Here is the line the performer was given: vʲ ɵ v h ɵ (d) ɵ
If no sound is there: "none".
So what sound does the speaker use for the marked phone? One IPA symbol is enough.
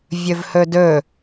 d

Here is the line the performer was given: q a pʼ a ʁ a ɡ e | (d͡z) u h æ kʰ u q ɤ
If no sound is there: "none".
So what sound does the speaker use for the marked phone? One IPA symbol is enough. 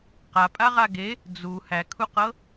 d͡z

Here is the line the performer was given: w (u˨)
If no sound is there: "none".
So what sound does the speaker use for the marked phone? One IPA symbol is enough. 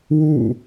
ṵ˦˨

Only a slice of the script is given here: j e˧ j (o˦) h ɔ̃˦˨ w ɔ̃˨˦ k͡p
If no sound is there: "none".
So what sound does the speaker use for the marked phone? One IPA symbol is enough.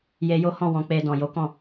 o˦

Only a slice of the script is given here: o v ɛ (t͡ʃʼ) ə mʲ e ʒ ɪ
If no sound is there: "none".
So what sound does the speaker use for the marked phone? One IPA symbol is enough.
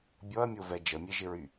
d͡ʒ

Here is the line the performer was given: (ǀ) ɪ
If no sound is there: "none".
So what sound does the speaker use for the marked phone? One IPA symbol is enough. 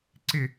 ǀ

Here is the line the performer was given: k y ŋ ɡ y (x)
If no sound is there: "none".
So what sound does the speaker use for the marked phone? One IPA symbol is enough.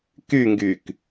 k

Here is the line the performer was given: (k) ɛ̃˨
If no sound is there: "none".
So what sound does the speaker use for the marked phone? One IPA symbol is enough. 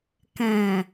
k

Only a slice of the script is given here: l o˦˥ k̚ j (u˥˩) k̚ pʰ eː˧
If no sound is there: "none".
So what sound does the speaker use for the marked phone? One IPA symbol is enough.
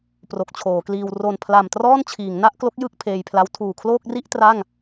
ɯ˥˩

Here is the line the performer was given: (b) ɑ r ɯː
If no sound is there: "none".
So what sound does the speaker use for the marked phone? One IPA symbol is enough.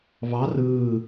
β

